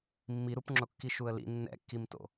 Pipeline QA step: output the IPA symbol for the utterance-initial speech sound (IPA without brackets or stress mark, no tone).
mː